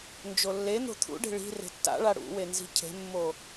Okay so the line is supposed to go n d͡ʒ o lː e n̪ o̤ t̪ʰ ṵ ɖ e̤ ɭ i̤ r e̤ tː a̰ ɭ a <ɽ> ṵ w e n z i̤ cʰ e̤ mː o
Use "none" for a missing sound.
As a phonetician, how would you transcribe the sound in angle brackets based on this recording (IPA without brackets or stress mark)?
ɽ